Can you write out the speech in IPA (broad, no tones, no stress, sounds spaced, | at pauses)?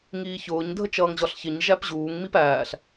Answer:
ŋ iː ç ʊː ɲ dʱ ə t͡ʃ ʌː ŋ ʑ ɒ ɬ ç ɪ ɲ ʒ æ p ʑ uː ŋ m i p æː ɬ